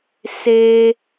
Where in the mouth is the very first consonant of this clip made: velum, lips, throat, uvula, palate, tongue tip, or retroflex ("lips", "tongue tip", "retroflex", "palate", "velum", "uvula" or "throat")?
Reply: tongue tip